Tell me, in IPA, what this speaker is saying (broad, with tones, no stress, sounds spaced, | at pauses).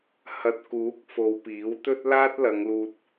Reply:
h ɐ˨ t̚ k uː˨˥ k̚ f o˨˧ w p iː˨˥ w t̪ ɵ˥ t̚ l aː˥ t̚ l ɐ˨˧ ŋ l uː˧ t̚